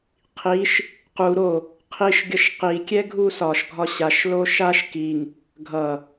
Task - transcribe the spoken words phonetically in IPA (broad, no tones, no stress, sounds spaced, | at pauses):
qʰ i ʃ | q u ɾ o | qʰ i ʃ ɡʲ ʌ ʃ q i kʲ ɛ ɡʱ u s ɒ ʃ ɡʱ ɒ ɕ a ʃ l o ʃ a ʃ k i ŋ | ɡʱ ʌ